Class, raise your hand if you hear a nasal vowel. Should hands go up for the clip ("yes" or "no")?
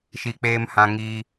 yes